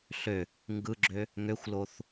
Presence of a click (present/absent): present